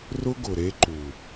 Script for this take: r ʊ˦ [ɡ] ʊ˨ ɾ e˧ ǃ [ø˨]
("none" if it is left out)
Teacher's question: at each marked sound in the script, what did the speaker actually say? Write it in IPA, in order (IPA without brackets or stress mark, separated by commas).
ɡ, u˨